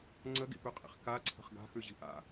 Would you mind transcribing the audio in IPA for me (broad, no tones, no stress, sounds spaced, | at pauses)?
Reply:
ŋ͡ǀ ə ɡ ḭ p ʉ qʼ ḭ χ k a ǀʰ ə̤ χ ɡ a̤ x ʉ ʑ i̤ ʔ a̰